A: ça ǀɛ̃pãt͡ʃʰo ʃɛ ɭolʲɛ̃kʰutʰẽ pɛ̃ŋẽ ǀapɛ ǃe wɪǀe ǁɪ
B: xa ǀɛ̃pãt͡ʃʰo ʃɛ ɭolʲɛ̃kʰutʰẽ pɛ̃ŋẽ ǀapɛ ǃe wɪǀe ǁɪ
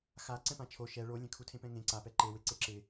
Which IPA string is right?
B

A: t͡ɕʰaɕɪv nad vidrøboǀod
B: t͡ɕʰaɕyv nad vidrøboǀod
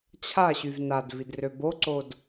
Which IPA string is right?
B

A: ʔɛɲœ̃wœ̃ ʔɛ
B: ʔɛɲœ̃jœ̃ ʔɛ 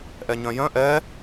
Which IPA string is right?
B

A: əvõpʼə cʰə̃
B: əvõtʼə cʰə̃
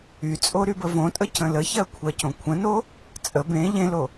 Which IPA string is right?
B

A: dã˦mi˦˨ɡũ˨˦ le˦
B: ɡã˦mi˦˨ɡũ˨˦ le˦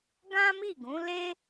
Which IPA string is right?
B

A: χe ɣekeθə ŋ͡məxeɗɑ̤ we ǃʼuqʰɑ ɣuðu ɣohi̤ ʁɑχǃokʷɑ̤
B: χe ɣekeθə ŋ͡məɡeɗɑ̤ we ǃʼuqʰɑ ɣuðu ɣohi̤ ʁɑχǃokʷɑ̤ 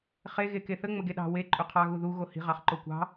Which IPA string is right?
B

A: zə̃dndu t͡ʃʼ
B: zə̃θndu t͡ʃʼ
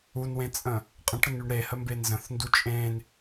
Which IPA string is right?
B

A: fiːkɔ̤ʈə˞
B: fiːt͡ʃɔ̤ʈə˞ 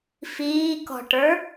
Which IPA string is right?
A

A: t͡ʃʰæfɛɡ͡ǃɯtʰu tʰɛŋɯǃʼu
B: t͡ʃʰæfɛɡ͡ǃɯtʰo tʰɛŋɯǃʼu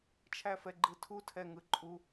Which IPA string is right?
A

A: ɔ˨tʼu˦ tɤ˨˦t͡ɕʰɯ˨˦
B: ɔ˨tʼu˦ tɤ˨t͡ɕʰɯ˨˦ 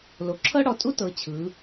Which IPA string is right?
A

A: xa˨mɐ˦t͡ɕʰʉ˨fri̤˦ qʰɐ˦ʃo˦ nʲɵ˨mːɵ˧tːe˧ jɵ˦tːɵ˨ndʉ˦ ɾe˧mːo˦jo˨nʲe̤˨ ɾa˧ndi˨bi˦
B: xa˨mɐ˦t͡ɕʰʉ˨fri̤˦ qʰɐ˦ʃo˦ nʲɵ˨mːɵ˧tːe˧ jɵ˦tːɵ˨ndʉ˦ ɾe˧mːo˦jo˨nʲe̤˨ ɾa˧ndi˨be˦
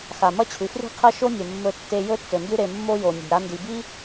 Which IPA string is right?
A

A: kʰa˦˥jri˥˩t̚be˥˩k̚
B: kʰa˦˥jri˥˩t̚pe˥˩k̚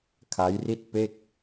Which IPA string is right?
B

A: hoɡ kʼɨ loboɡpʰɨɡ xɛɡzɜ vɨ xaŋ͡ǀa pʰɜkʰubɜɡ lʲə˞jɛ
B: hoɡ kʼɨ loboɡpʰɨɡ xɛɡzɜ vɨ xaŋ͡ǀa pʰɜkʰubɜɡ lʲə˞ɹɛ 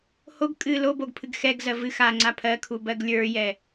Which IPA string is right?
A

